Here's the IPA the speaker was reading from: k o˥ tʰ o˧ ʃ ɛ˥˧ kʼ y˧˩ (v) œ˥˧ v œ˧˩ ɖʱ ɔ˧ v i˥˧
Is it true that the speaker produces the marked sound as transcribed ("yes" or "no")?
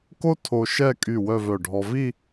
no